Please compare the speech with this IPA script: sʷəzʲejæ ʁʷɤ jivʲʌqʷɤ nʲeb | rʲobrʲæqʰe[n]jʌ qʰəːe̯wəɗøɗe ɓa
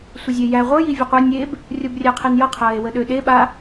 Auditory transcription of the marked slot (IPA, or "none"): n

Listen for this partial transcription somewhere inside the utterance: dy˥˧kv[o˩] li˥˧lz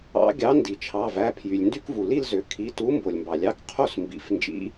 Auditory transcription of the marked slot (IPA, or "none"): u˩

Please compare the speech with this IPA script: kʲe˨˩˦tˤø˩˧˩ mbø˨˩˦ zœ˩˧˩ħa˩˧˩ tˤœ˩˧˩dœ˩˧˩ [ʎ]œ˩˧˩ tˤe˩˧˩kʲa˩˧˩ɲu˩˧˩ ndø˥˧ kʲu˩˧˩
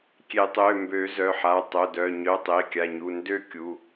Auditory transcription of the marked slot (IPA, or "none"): ɲ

